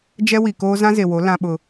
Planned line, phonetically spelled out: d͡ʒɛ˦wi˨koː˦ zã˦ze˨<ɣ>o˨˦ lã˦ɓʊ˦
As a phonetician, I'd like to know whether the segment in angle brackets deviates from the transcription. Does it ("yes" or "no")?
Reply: yes